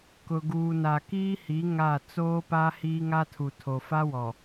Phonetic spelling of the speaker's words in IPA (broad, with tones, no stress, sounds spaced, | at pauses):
k ʊ˨ ɡ uː˨ n a˨ k iː˦ h i˨˦ ŋ a˦˨ t͡s oː˦ p a˦ h iː˦ ŋ a˦ tʰ u˨ tʰ o˨ f a˦ w ɔ˨